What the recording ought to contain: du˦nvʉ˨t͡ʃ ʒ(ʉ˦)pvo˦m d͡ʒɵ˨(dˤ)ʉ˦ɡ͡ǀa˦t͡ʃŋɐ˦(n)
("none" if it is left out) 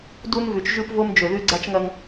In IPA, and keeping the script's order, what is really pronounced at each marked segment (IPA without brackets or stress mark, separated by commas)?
ʉ˦, ð, ŋ